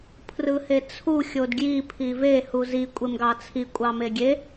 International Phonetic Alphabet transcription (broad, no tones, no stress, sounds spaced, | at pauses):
pʰ r ɯ h e t͡sʰ u xʲ o d ɡ j i pʰ i v e h u z i kʷʼ e m ɡ ɑ t͡sʰ i kʷʼ ɑ m e ɡʲ e